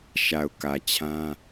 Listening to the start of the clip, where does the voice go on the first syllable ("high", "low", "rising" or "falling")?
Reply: low